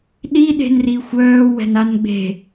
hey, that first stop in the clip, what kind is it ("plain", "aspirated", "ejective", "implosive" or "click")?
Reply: implosive